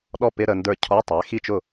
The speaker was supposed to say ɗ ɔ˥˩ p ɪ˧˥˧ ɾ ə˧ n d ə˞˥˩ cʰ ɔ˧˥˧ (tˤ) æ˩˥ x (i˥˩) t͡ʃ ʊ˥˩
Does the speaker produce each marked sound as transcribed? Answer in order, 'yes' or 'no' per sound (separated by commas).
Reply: yes, yes